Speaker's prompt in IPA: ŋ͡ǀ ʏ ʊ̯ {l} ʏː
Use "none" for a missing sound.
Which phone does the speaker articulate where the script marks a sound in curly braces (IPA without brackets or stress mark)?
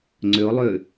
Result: lˠ